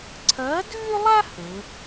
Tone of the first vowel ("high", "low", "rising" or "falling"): rising